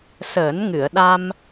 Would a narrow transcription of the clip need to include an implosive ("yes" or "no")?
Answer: yes